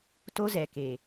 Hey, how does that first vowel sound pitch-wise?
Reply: high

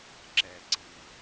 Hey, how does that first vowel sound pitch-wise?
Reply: low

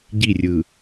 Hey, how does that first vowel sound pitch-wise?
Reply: falling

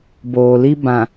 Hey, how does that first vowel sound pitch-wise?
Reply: low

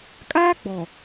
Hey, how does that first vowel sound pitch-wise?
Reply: high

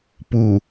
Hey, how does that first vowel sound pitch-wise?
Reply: low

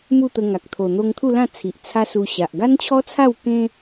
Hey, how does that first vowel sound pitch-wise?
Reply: falling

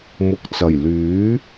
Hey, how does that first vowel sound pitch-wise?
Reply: low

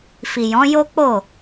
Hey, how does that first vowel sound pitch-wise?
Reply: low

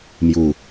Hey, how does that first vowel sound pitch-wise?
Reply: low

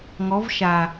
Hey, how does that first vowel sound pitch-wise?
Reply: rising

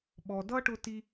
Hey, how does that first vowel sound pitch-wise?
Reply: low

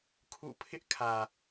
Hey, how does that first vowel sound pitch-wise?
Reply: falling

